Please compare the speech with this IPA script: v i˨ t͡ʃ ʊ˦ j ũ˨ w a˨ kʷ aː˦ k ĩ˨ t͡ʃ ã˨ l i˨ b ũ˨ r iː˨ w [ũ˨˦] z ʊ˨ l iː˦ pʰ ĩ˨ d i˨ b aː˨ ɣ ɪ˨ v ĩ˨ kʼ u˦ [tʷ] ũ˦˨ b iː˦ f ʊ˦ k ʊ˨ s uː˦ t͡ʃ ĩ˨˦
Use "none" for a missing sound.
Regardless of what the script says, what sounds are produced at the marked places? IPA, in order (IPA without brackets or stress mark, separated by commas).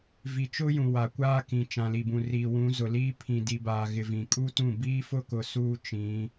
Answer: ũ˨˦, t